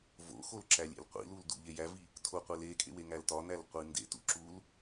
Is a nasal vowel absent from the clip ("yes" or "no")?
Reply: yes